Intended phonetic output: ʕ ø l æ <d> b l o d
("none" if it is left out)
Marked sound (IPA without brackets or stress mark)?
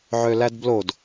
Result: d